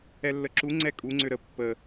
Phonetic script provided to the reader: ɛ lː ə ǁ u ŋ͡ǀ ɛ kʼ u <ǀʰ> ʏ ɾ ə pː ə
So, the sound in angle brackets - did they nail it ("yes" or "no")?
no